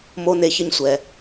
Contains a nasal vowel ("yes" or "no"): no